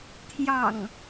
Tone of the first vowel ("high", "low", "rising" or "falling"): low